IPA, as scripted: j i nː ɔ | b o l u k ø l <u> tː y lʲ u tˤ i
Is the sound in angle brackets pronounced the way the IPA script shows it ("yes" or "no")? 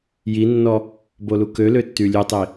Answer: no